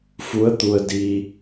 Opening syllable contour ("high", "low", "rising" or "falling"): rising